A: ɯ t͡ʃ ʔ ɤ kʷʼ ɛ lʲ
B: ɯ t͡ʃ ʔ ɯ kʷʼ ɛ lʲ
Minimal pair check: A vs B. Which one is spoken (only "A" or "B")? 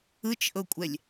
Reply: A